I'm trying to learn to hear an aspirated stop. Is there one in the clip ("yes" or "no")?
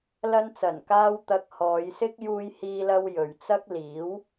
no